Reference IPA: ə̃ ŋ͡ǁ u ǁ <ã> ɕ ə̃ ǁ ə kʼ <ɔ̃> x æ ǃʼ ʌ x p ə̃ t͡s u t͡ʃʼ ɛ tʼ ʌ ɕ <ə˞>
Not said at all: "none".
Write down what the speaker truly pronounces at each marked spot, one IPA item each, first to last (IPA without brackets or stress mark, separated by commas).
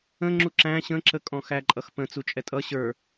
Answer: æ̃, ɔ̃, ə˞